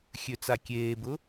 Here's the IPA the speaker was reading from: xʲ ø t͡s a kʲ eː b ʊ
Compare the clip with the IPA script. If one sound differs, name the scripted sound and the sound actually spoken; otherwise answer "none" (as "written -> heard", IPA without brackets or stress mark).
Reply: none